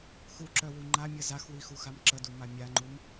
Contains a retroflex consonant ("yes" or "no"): no